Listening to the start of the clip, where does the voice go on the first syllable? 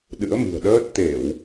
rising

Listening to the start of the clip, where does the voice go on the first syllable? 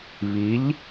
rising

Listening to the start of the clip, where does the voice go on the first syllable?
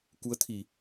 rising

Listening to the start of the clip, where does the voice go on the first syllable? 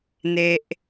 low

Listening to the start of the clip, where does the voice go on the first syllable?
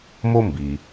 high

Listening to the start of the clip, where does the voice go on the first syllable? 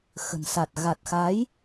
low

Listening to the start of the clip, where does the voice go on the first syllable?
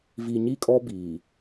low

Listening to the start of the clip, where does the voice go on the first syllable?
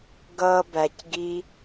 high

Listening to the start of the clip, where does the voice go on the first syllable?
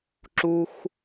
high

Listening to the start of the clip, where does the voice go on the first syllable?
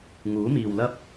rising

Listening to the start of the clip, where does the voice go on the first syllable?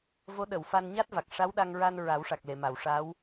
rising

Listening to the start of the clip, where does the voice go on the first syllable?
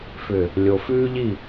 low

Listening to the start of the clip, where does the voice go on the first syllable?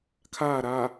falling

